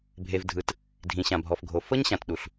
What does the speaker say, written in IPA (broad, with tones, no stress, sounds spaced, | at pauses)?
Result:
bʱ e˩ v dʱ ɯ˩ t | dʱ ĩ˩ ɕ ã˩ bʱ ɔ˩ f ɡʱ o˩ f ɤ˥ ɲ ɕ ã˩ t ɗ u˩ ɬ